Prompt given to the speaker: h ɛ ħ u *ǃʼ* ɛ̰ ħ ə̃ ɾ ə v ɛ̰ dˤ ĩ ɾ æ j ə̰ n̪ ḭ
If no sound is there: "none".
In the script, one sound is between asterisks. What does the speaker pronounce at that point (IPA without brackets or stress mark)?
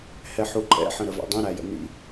ǃʼ